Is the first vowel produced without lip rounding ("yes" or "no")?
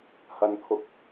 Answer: yes